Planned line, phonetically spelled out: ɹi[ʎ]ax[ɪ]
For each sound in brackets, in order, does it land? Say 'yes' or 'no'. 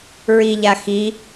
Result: yes, no

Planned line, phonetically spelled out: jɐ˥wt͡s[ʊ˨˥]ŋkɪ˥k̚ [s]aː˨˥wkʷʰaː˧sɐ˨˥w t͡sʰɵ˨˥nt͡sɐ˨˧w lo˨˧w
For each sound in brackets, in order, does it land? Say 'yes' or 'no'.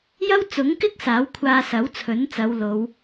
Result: yes, yes

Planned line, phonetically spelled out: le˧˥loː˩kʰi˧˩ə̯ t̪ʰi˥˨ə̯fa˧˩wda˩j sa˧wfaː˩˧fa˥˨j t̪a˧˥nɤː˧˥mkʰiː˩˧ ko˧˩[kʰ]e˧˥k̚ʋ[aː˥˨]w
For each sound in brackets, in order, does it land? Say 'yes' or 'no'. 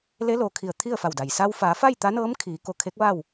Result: yes, yes

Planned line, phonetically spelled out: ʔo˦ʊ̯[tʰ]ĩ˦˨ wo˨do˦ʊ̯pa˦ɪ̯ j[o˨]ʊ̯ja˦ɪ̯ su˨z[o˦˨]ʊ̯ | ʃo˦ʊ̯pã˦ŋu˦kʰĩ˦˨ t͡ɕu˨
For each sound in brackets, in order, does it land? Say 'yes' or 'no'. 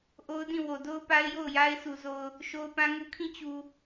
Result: no, no, no

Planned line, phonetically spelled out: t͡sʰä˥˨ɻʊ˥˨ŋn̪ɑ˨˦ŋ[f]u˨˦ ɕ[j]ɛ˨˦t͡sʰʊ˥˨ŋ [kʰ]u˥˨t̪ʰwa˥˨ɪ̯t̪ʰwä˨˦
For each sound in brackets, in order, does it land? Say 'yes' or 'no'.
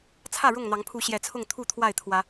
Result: no, yes, no

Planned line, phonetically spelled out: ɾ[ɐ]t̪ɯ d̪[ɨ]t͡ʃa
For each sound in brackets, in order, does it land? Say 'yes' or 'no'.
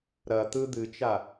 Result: yes, yes

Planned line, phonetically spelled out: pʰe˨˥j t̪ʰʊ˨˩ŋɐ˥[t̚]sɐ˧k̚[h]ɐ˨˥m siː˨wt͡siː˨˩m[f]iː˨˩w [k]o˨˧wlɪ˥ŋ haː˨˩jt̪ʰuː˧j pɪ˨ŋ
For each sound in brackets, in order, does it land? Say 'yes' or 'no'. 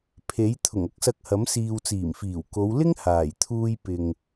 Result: no, yes, yes, yes

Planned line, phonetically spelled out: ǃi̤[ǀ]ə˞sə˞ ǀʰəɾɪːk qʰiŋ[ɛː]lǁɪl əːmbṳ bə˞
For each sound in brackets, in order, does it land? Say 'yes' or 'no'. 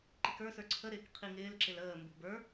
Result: no, no

